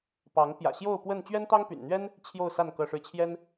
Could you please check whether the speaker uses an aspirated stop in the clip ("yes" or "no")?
yes